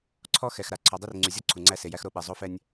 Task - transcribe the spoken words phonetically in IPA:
ǀʰ ɔ˦ x ɛ˨ x ɾ a˨ ǀʰ ɔ˨ dˤ e˦ r ŋ͡ǀ y˨ zʲ ɔ˦ ǀʰ u˨ ŋ͡ǀ æ˦ s e˨ j æ˦ x ɾ o˦ ɓ ɛ˨ zˤ o˦ f ɛ˦ nʲ

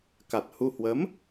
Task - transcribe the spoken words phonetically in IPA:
k a˨˩ t̚ h u˧ h w ə˨˦ m

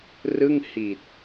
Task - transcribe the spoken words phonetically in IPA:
r ɯ˥˩ ŋ h i˨˩ t̚

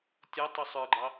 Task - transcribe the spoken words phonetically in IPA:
tʲ ɔ tˤ u sˤ ə˞ ɡ͡ǃ ɑ

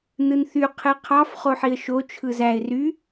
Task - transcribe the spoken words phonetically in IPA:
n ɯ n θ y qʰ e qʰ ɑ f χ o ħ i ə̯ ʃ o t͡ʃʰ ɯ z æ ɪ̯ r y

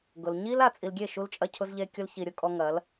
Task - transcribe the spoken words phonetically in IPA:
ɡ ʊ˨ l ɲ i˦ l a˨ t͡sʼ i˨ l ɡʲ e˦˨ ʃ u˦ l t͡ʃʼ ɐ˦ cʰ ʊ˦ z ʎ e˦ kʲ ʊ˦ l ç i˨ ɾʲ ʊ˦ kʼ ɔ˦ ŋ ɐ˨˦ l

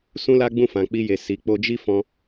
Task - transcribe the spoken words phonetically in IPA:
s ũ˦ l a˦ ɡ͡b ũ˦˨ f ã˨ k͡p i˧ j e˨ s i˨ k͡p o˧ d͡ʒ i˦ f ɔ̃˧

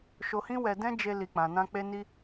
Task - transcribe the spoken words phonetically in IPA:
ʃ o˧ h ĩ˦ w ɛ˧ d ɛ̃˦ d͡ʒ e˧ l i˨ k͡p ã˨ n ã˧ k͡p e˧ n i˧

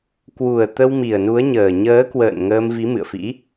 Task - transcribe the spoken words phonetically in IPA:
k w u˨˩ ə̯ t̪ ə˧ w m i˨˩ ə̯ n u˨˦ ə̯ ɲ əː˨˩ ɲ əː˨˦ k w ə̰ː˧˨ n ŋ əː˧ m v i˨˦ m ɨ̰˧˨ ə̯ f ḭ˧˥

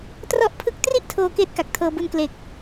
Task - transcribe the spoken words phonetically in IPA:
t r ɔ˦˥ ʔ pʰ ɯ˦˥ k̚ t r i˥˩ ʔ tʰ oː˧ k eː˦˥ t̚ k a˨˩ k̚ tʰ ɤː˧ b u˧ n k l e˨˩ k̚

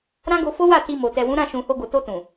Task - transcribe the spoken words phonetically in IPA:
ɾ ã˦ ɡ o˧ f o˦ w a˦˨ t i˧ m o˨ t ɛ˨ w ũ˨˦ ɾ ã˦˨ ʃ ũ˨ h o˧ ɡ o˨ t o˧ t ũ˨

